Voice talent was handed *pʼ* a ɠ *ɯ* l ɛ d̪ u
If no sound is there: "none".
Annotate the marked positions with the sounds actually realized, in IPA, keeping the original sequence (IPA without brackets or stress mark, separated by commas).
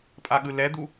pʼ, ɯ